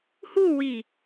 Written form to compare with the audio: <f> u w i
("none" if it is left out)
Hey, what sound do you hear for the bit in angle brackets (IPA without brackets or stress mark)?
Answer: h